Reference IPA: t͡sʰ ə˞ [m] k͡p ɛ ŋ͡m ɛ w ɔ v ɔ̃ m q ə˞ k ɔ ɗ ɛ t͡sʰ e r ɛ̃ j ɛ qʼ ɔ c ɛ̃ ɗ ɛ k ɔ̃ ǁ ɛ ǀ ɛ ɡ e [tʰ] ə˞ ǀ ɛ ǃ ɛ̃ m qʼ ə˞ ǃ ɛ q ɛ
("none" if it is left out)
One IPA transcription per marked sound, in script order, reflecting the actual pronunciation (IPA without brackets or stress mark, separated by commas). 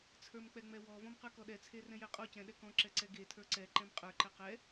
m, tʰ